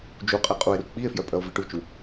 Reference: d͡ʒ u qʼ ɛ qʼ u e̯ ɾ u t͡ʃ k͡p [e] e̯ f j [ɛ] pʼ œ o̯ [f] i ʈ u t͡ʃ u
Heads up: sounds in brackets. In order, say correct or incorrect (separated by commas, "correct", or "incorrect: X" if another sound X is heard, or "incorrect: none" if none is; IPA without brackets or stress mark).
incorrect: i, incorrect: œ, incorrect: v